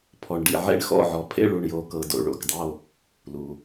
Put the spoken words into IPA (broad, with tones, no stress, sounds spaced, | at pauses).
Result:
pʰ ɔ˩ ɳ ɖ ḭ˩ ʕ ḛ˧˩ ɳ x ɔ̰˧˩ ʕ ɔ˩ pʰ ḛ˧˩ ɭ u˩ ɳ j o˩ k ɤ˩ d o̰˩ ɭ o̰˩ k dˤ o˧˩ | l u˩